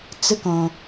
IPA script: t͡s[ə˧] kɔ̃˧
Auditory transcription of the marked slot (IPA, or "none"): ə˧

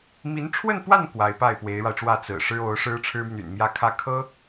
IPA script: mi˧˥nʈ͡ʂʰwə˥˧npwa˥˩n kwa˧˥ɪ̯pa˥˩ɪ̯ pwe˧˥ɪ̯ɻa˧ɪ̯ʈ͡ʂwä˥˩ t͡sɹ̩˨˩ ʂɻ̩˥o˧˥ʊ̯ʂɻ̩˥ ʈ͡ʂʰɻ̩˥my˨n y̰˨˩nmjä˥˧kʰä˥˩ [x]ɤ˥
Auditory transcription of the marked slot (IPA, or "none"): kʰ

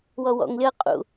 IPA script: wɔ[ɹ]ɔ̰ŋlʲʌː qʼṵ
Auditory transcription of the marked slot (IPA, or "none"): w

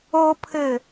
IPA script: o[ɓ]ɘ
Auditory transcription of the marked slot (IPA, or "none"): pʰ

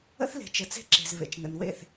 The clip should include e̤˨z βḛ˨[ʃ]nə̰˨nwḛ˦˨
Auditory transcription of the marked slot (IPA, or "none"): t͡ʃ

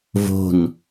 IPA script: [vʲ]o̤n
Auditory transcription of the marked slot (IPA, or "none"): v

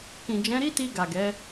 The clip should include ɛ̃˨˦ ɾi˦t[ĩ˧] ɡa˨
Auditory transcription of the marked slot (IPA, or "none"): i˧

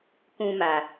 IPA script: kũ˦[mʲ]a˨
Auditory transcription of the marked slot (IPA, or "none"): m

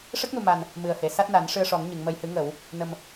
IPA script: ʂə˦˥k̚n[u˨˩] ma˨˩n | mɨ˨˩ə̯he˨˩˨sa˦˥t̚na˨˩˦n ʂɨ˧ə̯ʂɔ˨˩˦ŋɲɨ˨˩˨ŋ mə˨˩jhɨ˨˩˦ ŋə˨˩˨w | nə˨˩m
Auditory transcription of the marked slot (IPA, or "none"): u˨˩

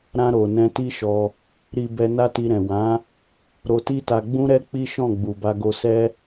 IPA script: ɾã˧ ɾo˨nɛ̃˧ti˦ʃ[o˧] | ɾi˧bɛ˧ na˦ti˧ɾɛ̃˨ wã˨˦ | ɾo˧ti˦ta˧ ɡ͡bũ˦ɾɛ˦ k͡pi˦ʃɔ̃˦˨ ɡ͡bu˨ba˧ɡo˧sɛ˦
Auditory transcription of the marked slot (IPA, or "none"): ɔ˧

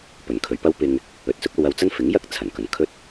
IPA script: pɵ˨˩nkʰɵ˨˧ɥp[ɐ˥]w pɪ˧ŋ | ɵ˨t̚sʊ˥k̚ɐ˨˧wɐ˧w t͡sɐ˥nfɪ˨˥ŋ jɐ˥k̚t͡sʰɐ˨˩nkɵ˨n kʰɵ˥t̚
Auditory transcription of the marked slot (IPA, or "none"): ɐ˥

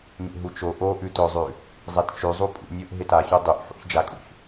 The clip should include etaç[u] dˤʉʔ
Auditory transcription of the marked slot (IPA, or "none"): u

